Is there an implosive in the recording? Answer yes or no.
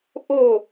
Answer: no